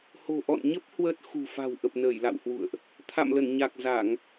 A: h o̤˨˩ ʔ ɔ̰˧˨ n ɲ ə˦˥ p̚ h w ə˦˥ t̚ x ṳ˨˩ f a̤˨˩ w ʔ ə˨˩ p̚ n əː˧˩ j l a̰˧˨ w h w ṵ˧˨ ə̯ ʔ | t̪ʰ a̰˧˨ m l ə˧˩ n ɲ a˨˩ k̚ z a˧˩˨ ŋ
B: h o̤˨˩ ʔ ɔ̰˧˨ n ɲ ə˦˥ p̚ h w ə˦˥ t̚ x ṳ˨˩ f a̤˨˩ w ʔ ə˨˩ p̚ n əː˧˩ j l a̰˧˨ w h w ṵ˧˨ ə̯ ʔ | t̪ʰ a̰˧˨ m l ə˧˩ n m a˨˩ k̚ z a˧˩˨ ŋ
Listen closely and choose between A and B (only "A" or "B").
A